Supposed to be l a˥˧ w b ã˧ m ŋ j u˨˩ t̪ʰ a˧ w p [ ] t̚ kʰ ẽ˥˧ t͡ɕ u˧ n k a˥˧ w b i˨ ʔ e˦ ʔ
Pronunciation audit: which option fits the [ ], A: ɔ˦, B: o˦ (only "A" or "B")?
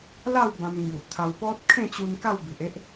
A